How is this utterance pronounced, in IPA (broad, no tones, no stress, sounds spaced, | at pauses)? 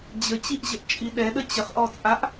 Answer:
d͡ʑ ə t͡ɕ i ʔ ʑ ə ʔ t͡ʃʼ i ɗ ɛ ɗ ə t͡ɕ ə χ ʔ ɔ t͡sʼ a ʔ